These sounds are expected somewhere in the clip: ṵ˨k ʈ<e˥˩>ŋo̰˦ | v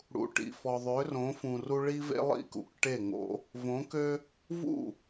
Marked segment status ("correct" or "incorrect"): correct